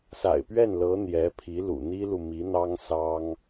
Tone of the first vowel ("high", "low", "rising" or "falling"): low